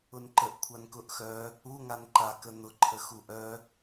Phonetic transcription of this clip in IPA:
ʊ n ǃ ə ʔ kʷʰ a n k ʊ ʔ x œ | u ŋ a n ǃ a k ə n̪ ʊ ǃʰ ə x u ʔ œ

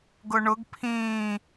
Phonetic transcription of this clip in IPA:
ɡ ʊ ɳ ʊ ɡ pʰ ĩː

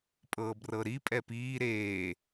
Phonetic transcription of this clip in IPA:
pʼ ɤː b r ɤ ɾ i pʼ ɛ p iː ɾ eː

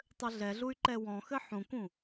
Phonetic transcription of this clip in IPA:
tˤ ɘ ɮ ɛ ɮ u y̯ ǃ ɛ w ɔ̃ x ɘ ħ ũ k ũ

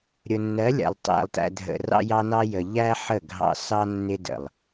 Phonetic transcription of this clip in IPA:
ɾʲ ʊ˨ nː ɜ˨˦ lʲ æ̰˨ lˠ tˤ æ̰˨ lˠ t æ̰˨ dʱ ə̰˨ r ɑ̰˦ j ɑ˦ n ɑ˦ j ə˨ ʎ æ˦ ħ ə˦˨ ɡʱ ɑ̰˦ s ɑ˦ nː ɪ˦ d ə̰˨ lˠ

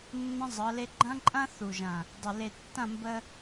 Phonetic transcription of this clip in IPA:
nː ə̃˦ zˤ ɤ˨˦ l e˦ ɡ͡ǃ ɐ̃˦ ǃʼ ɐ̃˦ θ u˨ ʒ ɐ̃˨ | dˤ ə˨ l e˨ tː ɐ̃˦˨ m b ə˦

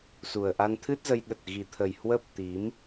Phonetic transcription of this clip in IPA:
s u˨˩ ə̯ ʔ a˧ n t̪ʰ ɨ˦˥ t̚ z ə˧ j ɗ ə˨˩ t̚ ɣ i˨˩ t̪ʰ ə˨˩ j h w ə˦˥ p̚ t̪ i˨˦ m

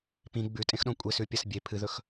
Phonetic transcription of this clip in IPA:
p ĩ ɡ͡b ʉ tʼ ẽ x ɗ õ kʷʼ e s ʉ pʲ ɐ s bʲ e pʰ ɨ ð ɵ x

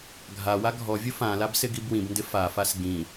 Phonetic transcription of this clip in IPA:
ɡʱ a w a ɡʱ ɔ vʲ ʊ f ã l a b s ɪ ɡ i b w ĩ b n d ɪ f a f a s ɡ ĩ

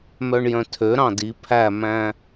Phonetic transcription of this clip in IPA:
m œ ɳ j œ̃ tʰ ø ɾ ɑ̃ d i pʰ æ m æ̃

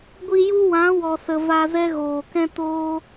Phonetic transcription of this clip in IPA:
ɡʷ i˧ j u˦ w ã˨˦ w ɔ˨ s ə˨ v a˧ z ɛ˦ ɣ oː˨ k ɛ̃˦ t oː˦

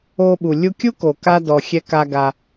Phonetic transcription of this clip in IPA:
o˧ ɓ u˨ lʲ u˧ kʲ u˦ k o˨ k a˦ d ɔ˨ xʲ ɛ˧ k a˧ ɡ a˧

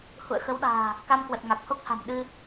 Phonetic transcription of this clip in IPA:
h ṵ˧˨ ə̯ x ə˨˦ w ɗ a̤ː˨˩ | k a˧ m k w ə˨˩ t̚ ŋ a˨˩ k̚ h o˦˥ k̚ h a̤˨˩ m ɗ ɨ˧

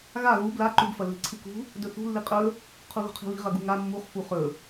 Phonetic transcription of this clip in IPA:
ɣ a ɣ u b l a ǃ u b f ɐ lː i̤ ǀʰ ɨ k ṳ | d ɵ θ ṳ lː i qʼ ɵ | qʰ u ɣ ṳ qʰ i̤ β i̤ ʁ ɐ ɡ u ŋ a mː u χ f u χ ɵ

